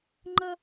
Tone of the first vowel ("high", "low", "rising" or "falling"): high